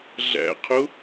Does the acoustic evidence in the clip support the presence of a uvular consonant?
yes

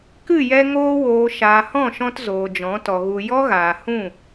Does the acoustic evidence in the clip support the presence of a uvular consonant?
no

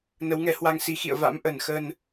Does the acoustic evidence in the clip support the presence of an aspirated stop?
no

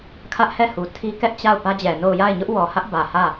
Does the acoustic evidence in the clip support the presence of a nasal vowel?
no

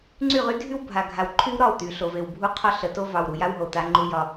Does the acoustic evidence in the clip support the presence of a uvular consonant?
yes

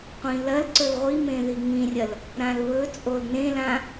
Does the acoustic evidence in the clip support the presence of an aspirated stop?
no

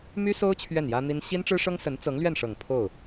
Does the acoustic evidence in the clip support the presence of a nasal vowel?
no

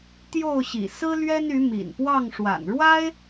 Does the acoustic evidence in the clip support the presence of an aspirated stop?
no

